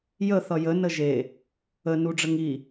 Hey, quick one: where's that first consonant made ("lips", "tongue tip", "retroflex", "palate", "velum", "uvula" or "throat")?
palate